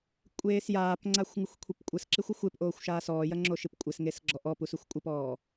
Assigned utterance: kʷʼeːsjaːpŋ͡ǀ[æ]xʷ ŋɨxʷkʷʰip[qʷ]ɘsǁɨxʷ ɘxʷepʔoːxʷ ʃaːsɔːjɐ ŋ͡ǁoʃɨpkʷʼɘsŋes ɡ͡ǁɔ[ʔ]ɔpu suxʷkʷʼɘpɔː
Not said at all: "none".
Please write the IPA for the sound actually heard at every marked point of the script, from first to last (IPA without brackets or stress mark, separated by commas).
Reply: a, kʷʼ, ʔ